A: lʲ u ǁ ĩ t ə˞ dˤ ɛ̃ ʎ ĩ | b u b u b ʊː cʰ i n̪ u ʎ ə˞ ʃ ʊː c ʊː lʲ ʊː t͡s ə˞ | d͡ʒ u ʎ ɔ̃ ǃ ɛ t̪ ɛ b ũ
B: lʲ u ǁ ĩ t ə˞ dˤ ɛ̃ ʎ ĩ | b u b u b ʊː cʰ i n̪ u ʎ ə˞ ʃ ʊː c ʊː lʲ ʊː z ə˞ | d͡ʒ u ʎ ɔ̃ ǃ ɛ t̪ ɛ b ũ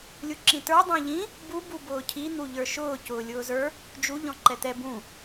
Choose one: B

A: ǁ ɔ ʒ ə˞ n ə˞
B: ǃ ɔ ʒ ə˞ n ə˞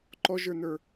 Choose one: B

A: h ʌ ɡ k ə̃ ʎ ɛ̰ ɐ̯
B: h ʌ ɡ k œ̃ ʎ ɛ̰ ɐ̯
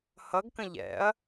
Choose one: A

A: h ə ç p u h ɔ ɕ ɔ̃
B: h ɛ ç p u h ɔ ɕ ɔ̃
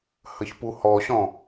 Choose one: A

